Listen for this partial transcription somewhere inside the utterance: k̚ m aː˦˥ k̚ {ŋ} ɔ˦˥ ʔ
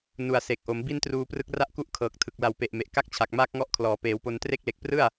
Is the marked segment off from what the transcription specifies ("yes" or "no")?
no